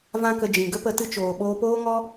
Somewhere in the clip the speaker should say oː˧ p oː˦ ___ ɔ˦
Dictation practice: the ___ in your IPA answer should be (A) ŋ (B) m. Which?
A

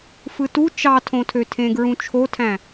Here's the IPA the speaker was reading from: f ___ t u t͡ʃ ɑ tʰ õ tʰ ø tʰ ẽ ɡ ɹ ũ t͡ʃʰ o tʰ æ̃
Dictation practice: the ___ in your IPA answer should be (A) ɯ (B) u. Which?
A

